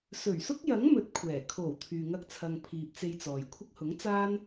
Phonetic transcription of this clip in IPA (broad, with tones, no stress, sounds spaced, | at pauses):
s ɵ˨˩ ɥ s ʊ˥ k̚ j ɐ˨˥ ŋ m ɵ˨ t̚ kʷʰ ɛː˨˩ kʰ o˨˩ w t̪ʰ yː˨ ŋ ɐ˧ k̚ t͡sʰ ɐ˨ ŋ pʰ iː˨ p̚ t͡s e˧ j t͡s ɔː˨ j kʷʰ ɪ˥ k̚ h ʊ˨˥ ŋ t͡s aː˥ n